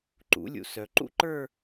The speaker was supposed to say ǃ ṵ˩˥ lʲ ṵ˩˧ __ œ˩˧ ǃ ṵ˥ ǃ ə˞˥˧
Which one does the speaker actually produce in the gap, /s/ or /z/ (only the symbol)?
s